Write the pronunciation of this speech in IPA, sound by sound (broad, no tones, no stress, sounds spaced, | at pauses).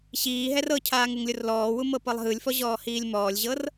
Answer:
ɕ iː ɦ ɛ r ɤ cʰ aː ŋ ɯ ŋ lʲ o r l ɔː w u m ɤ p ɤ lˠ ɦ ɯ lʲ f ɔ ʑ ɔː h iː lʲ m ɔː lʲ ʑ ɤ r